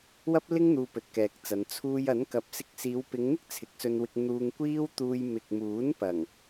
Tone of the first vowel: high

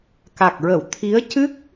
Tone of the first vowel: low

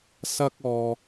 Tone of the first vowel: high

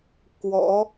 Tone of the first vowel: rising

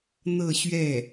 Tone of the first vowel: falling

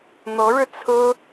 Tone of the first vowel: rising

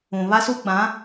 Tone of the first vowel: low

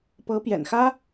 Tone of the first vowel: rising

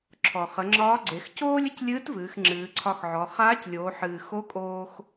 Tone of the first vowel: low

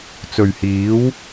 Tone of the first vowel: low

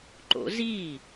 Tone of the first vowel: rising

